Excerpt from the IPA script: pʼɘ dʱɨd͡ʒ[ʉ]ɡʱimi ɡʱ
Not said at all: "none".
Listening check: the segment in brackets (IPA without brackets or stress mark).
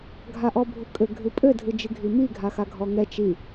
ɨ